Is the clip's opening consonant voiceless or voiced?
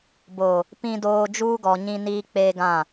voiced